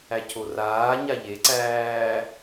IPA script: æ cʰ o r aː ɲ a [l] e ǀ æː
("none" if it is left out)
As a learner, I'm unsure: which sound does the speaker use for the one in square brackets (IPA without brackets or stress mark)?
ʎ